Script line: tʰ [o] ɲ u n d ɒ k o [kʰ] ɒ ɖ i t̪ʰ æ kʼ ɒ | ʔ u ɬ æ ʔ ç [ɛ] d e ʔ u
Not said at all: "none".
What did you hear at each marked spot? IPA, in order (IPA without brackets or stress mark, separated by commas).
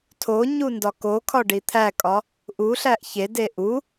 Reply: o, kʰ, e